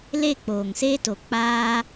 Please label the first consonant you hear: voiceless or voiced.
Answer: voiced